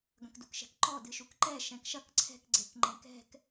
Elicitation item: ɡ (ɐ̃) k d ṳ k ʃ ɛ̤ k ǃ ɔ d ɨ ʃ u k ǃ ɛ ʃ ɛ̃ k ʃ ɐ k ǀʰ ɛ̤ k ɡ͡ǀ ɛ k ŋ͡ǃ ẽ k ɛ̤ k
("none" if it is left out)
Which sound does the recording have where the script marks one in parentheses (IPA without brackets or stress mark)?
ɐ̃